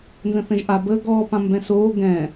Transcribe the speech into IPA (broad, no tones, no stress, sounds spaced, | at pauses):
n z ə̃ θ ə̃ ʒ ʔ a b əː ɡ ɔː p ã m b ɛ̃ s oː ɡ ɛ̃